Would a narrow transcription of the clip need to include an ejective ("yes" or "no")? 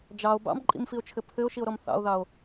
yes